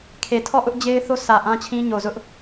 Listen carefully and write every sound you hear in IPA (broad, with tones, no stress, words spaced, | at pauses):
kʰe˨tʰɔ˦˨ʔʊ˦ʔ d͡ʑe˦ɪ̯θo˦sʰä˨ ʔã˦t͡ɕʰĩ˦ɲo˨zʊ˦ʔ